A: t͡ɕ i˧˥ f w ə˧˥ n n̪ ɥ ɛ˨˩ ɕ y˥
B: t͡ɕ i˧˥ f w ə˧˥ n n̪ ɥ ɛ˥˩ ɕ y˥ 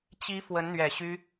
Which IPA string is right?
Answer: A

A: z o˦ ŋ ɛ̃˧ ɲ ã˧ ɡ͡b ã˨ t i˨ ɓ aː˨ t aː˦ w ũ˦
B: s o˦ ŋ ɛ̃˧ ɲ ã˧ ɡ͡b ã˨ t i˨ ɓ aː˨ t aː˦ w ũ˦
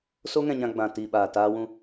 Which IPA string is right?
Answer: B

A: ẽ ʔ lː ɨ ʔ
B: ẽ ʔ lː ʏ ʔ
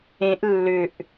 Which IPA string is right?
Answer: B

